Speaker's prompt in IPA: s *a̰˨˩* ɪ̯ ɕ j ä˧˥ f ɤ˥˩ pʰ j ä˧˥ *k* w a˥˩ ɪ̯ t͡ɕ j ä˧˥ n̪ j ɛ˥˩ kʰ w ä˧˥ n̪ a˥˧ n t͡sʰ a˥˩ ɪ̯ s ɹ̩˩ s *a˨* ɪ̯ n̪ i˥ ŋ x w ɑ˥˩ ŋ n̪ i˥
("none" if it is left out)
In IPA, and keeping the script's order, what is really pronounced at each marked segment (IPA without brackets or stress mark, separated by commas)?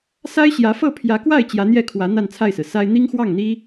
a˥, k, a˥